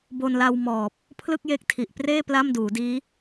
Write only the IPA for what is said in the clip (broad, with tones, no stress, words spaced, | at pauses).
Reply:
bo˧nla˧wmɔː˨˩p̚ | pʰlɯ˥˩k̚je˦˥k̚tʰi˨˩ʔpreː˥˩ pla˥˩mduː˩˦diː˦˥